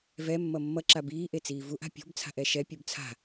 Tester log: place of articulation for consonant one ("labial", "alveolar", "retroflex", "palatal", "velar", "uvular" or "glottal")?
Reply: labial